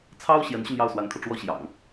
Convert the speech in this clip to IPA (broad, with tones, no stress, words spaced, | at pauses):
t͡sʰɑ˥ʊ̯ ɕjɛ˧˥nɕy˧njɑ˥˩ʊ̯ swa˧˥nkʰɤ˧ ʈ͡ʂwɔ˥ɕjɑ̰˨˩˦ŋ